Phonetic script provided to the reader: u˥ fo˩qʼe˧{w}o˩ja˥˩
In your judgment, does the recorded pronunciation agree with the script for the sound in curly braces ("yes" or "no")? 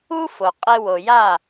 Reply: yes